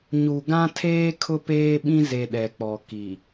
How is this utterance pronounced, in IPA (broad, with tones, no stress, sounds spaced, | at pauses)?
ɲ u˨ ɡ ã˦ tʰ eː˦ kʰ ʊ˦ p eː˦ ɓ ĩ˦ z e˨ ɗ ɛ˨ k͡p ɔ˨ k i˨